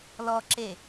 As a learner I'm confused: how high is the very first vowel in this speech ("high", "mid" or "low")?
mid